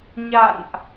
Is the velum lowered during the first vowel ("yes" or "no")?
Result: no